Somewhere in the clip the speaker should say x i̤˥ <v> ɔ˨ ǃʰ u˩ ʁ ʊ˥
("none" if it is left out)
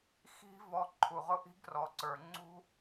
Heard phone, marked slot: v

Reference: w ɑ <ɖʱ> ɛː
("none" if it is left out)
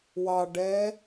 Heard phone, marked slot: ɖ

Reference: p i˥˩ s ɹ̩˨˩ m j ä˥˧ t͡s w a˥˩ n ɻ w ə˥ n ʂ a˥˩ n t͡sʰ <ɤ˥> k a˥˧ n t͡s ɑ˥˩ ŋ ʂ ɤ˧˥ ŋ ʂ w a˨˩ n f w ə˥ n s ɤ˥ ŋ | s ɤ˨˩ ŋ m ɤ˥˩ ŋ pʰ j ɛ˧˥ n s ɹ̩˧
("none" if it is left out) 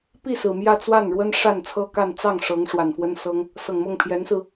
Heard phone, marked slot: ɤ˥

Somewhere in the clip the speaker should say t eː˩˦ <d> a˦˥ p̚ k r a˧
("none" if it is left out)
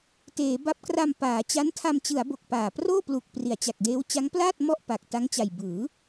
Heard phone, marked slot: b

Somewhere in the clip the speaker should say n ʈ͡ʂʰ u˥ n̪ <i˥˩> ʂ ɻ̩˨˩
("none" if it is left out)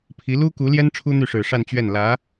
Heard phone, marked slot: y˥˩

